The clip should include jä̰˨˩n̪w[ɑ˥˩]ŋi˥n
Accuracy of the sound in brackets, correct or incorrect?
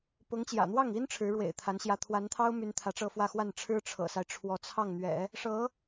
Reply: correct